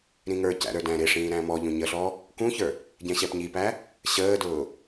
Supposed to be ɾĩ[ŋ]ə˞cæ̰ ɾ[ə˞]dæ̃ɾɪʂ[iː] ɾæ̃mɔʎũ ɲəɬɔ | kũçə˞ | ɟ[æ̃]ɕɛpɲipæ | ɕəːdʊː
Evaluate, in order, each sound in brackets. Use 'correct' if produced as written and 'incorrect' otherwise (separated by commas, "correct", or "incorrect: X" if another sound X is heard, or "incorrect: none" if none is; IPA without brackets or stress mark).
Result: correct, correct, incorrect: ĩː, incorrect: ɛ̃